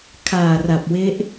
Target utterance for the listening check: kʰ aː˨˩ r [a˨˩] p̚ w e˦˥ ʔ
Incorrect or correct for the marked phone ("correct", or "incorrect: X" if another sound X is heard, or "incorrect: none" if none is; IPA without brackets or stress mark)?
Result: correct